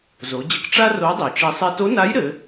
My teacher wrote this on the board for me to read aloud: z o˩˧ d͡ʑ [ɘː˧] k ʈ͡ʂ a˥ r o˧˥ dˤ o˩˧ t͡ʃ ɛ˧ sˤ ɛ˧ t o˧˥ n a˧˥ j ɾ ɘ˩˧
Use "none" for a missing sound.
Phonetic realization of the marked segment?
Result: ɘ˧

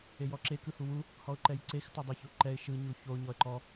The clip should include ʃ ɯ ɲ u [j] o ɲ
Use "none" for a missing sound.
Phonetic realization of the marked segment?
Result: ç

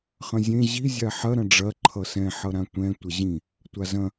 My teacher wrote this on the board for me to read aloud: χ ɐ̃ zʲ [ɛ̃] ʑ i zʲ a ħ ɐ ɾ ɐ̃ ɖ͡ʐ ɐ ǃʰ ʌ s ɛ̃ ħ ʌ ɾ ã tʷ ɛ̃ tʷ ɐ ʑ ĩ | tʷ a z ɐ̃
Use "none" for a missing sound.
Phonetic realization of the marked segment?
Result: ẽ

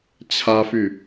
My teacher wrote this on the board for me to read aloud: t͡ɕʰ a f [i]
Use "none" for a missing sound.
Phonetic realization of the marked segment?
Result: y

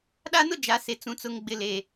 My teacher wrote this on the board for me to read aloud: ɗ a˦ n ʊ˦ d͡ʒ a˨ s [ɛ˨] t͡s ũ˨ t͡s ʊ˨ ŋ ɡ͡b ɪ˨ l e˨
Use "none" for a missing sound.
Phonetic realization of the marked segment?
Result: e˨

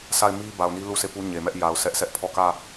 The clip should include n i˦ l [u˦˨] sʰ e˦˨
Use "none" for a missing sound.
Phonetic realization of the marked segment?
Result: u˦˨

